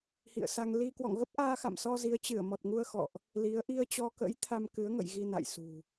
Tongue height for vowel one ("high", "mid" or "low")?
high